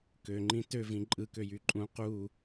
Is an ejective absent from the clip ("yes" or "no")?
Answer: no